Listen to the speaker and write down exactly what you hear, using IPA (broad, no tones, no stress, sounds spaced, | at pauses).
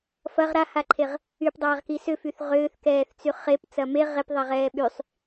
f ɐ ʁ ɾ a h a ǃʰ e ʁ | y p dˤ aː ʁ k i s ʏ f y θ ʁ ʏː θ k ɛː θ t͡s y χ e p t͡s ɐ m e ʁ e p ðˤ ɛ ʁ ɛː ɓ y sˤ